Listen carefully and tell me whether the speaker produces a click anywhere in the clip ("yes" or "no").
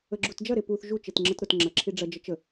yes